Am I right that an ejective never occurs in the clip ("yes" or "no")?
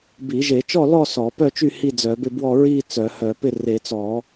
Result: yes